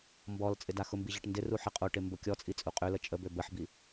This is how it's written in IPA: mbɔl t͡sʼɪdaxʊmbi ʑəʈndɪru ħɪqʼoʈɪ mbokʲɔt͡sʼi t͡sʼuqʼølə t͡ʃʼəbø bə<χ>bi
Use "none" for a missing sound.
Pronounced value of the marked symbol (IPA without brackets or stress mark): ħ